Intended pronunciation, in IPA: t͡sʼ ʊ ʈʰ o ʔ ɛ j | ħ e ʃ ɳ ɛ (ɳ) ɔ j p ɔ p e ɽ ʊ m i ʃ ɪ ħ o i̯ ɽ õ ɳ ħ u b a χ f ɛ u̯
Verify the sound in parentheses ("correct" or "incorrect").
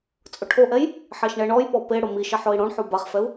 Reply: correct